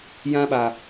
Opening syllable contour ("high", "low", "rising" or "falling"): high